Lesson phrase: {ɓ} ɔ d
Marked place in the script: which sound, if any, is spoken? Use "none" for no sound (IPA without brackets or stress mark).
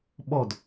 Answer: ɓ